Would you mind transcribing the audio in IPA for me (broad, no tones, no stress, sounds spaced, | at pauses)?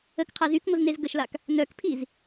ə k qʰ a z y k ŋʷ ə z n e z ɡ ə ʃ l a k | n œ k pʰ i z